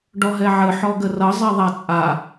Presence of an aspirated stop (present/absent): absent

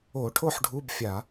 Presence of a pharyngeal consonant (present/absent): present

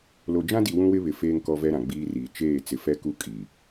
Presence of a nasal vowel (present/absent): present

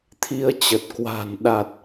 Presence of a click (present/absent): absent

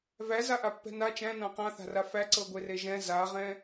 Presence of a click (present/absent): present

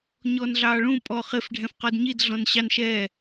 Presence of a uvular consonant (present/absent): present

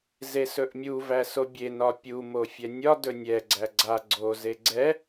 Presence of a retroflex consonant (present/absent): absent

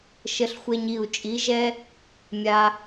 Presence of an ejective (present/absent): present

